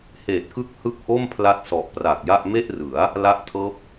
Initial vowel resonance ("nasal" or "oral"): oral